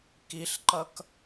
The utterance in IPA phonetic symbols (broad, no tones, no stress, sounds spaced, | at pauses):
k i ɬ ǃ ʌ k